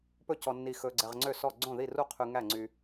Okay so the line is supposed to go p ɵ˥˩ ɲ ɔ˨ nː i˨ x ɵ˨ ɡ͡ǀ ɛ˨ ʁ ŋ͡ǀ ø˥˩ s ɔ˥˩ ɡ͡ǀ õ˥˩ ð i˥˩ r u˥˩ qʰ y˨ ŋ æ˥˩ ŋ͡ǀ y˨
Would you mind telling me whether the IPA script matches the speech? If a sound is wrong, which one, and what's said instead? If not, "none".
ɲ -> c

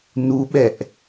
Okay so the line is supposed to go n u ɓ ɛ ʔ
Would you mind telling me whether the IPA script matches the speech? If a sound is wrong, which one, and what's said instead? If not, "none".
none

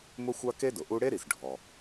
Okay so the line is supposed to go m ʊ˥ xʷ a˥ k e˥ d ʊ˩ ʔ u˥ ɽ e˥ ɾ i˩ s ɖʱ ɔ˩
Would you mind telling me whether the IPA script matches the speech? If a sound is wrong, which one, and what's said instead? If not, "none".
none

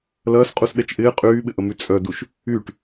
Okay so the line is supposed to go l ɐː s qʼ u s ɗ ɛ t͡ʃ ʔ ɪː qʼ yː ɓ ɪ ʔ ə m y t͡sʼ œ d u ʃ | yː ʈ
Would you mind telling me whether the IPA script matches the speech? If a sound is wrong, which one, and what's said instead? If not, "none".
none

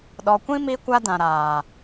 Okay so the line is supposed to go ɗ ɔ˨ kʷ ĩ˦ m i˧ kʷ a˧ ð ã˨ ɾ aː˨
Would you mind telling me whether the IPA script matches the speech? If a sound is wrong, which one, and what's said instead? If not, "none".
ð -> d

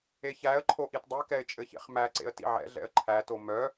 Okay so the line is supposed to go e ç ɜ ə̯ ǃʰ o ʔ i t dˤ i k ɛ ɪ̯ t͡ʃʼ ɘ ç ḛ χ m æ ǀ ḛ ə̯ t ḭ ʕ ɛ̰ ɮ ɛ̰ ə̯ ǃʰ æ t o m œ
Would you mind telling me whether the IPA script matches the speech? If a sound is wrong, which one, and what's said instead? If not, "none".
ɜ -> æ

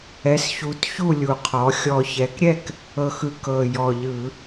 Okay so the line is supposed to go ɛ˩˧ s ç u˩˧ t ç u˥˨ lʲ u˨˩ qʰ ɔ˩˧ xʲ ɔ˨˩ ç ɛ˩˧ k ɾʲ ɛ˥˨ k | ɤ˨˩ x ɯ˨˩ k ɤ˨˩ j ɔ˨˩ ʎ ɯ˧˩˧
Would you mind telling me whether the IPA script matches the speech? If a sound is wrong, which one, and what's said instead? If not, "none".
none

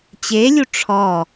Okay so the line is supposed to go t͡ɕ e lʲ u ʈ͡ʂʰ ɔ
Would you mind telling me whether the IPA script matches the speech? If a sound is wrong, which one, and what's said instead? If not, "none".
none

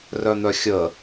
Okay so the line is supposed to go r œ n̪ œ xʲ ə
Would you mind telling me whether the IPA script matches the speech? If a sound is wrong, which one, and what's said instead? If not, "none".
none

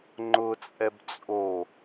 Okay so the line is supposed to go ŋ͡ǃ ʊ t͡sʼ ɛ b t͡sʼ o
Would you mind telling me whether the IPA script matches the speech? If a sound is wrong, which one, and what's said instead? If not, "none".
none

